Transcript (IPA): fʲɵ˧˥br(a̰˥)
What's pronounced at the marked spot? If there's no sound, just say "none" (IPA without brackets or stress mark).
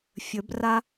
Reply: a˥